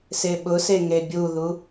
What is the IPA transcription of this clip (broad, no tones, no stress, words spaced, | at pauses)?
seɓʊse ŋebʲuðu